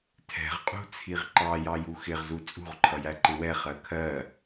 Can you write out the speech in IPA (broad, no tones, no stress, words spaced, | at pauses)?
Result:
tʰɛ̤ʁqʼṳt͡sʰiʁ ǃɑjɑju xɪʁzu t͡sʼṳʁǃʰʌjæǃɪ wɛχɜ kʰɜ